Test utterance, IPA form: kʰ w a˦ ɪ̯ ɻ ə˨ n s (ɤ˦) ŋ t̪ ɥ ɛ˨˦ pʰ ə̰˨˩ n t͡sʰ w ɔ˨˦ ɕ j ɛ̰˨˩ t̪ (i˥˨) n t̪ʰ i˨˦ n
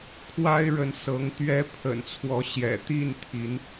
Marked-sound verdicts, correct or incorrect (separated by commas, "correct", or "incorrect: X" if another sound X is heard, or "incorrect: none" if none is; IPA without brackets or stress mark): incorrect: ɤ˨˦, correct